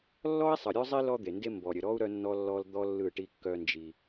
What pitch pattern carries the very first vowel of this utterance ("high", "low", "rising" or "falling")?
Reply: high